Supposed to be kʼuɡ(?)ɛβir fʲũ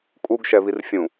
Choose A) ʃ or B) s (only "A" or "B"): A